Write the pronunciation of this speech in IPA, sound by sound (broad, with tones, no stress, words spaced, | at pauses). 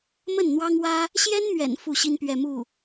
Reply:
mə˥˩nn̪wɑ˥ŋwä˥ | ɕjɛ˥nmɥɛ̰˨˩n fu˥˩ɕi˥n pɥɛ˥˧mu˥˩